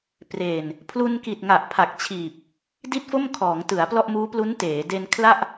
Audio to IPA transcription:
pre˨˩n | pʰlu˧nki˨˩t̚ ŋa˨˩ʔpʰa˨˩k̚t͡ɕʰiː˨˩p̚ | di˥˩t̚fo˥˩m kʰɔː˩˦ŋtɯ˩˦a̯ plɔ˥˩ʔmuː˦˥plu˦˥n teː˩˦ de˧nkʰla˥˩ʔ

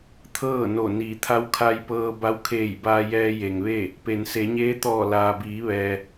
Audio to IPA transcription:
t̪ʰɤː˥˨no˧˩ niː˩˧t̪ʰa˧˥wkʰa˧jpɤː˧ ba˧wkʰeː˧˩jbaː˧ jɛː˧je˩ŋʋe˥˨ | pe˩nse˩˧ɲeː˧˥t̪ɔː˧˩ laː˩biː˩˧ʋɛː˩

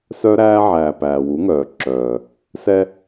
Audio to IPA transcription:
sœ˦ɾæː˦ʕæː˨ pæː˨wu˨˦ŋœː˨ ǁœː˨ | sɛ˧

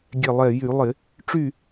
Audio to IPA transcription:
ɡʲɛ˧˩lˠɛ˧˩ jy˧˩˧lˠɪ˧˩˧ | ʈ͡ʂy˥˨

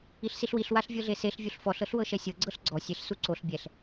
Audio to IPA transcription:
iɬsiɬwiɬ waɬvʲɤɮeseɬ vʲuɬfɔɬ ɤɬwɤʃɛsʲɤ ɡ͡ǀɤɬɡ͡ǀɔ sʲeɬ suǀoɬ bʲɛɬ

